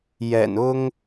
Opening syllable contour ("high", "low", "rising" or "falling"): low